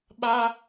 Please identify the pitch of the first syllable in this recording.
high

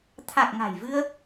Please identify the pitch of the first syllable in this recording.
low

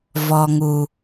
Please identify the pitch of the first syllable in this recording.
low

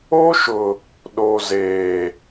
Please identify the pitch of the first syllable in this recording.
high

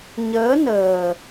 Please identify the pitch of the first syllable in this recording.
rising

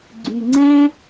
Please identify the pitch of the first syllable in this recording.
low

